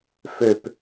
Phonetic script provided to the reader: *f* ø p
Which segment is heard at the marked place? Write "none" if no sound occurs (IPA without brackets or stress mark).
f